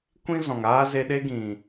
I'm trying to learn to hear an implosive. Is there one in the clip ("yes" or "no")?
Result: yes